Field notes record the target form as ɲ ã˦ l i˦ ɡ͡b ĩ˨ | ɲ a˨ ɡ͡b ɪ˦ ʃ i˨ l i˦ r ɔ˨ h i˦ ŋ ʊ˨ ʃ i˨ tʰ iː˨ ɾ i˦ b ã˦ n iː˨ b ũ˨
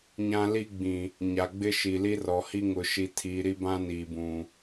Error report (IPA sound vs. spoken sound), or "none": none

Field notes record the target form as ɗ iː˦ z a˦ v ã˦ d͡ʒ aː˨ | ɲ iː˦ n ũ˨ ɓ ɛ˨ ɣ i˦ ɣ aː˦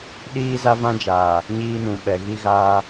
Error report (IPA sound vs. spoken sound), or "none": none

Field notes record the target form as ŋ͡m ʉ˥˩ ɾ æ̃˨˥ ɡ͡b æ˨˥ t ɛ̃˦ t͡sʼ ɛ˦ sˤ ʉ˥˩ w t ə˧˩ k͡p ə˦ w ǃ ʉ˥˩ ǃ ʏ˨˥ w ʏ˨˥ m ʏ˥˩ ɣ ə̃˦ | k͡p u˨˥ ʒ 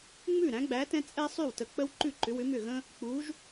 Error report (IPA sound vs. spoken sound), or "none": none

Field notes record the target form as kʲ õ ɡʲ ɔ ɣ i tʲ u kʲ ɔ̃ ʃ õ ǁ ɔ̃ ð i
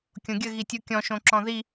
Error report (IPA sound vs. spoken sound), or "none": ɔ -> ə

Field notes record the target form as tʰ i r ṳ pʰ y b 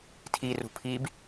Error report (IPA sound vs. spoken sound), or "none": y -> i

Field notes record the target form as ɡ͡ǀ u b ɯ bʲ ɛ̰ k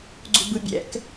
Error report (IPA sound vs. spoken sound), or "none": none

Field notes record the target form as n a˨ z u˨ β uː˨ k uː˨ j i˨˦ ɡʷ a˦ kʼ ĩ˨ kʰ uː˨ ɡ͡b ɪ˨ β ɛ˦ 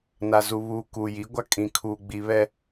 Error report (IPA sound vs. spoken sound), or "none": ɪ˨ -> i˨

